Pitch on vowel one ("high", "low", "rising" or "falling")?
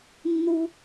high